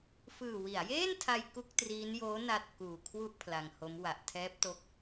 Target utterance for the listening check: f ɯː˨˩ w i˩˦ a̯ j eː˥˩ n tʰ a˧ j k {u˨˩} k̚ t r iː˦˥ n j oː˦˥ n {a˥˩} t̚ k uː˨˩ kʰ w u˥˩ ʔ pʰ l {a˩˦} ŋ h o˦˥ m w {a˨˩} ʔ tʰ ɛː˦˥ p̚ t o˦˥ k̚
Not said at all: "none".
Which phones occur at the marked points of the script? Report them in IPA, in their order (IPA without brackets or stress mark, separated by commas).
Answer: u˥˩, a˥˩, a˧, a˨˩